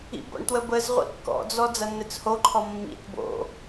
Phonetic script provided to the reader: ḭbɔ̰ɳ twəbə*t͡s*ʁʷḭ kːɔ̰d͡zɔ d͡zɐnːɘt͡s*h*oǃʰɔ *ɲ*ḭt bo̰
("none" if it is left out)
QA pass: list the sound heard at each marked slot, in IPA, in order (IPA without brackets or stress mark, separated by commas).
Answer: z, h, mː